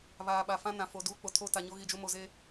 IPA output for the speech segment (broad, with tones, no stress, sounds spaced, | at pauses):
β aː˨ ɓ a˨ f ã˦ n ã˨ f o˨ d uː˦ k͡p o˨ tʰ o˦ t a˨ ɲ o˦ ɣ i˨ d͡ʒ ʊ˦ m o˨ z e˦